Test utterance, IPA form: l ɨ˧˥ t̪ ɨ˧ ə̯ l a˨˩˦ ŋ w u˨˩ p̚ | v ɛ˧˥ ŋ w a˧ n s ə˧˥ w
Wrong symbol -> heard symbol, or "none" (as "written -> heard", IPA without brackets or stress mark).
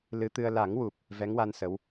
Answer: none